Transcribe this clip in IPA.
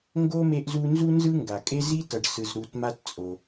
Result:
ŋ ɡ o˥ m e˦ ʔ z u˦ n z u˥ n z ɯ˥ ŋ ɡ a˩ kʼ e˥ z i˥ t ʌ˨ ɖ s ɯ˨ z ɾ u˨ t m a˦ t t͡sʼ o˩

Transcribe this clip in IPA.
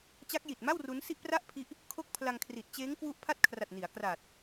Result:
t͡ɕ a˦˥ k̚ j i˨˩ t̚ m a˥˩ w r u˦˥ n s i˥˩ ʔ p r a˥˩ ʔ pʰ i˦˥ ʔ | kʰ o˥˩ k̚ pʰ l a˧ ŋ kʰ r i˨˩ t̚ t͡ɕ eː˦˥ ŋ k w u˦˥ ʔ pʰ a˥˩ t̚ kʰ r a˨˩ t̚ n i˩˦ a̯ k r aː˨˩ t̚

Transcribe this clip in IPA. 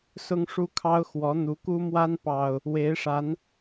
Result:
s ʊ˦ ŋ ʂ u˦ kʰ ɑ˦ ʊ̯ x w ɔ˨˦ n̪ u˨˦ k u˦ m w a˦ n p ɑ˨˩ ʊ̯ | w e˨˦ ɪ̯ ʂ a˨˦ n

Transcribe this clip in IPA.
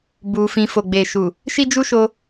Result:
b u˧ f ĩ˧ f o˨ ɡ͡b e˨ ʃ u˨ | ʃ i˦ d͡ʒ u˦ ʃ o˧

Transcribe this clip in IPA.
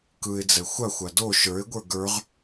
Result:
k ɯ ɪ̯ d͡z ɛ xʷ a xʷ a d o ʃ ə˞ ɪ̯ ɡʷ ə˞ ɡ ə˞ ʁ

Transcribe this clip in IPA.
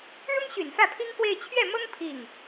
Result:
ɻ ʊ˥ ŋ ɕ y˨˩ n f ä˥˩ pʰ i˥ ŋ k w e˥˧ ɪ̯ t͡ɕʰ ɥ ɛ˥˩ m ɤ˥ ŋ pʰ i˥˩ ŋ

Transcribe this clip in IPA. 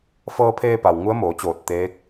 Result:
f ɤː˧ pʰ eː˧ p a˩ w ŋ u˧˥ ə̯ m oː˩˧ t͡ɕ oː˧˩ t̚ t̪ eː˧˥ k̚

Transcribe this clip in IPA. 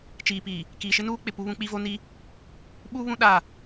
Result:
t͡ʃ iː˨ p i˨ | k iː˨ ʃ ɪ˦ n uː˦ k͡p ɪ˨ p u˦ β ũ˦ k͡p i˦ v o˦ n i˦ | ɓ uː˦ β ũ˦ ɗ a˦˨

